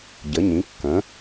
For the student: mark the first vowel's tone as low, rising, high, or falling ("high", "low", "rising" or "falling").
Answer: rising